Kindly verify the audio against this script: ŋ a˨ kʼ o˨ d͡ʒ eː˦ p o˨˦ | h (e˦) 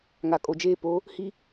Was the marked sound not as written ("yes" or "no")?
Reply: yes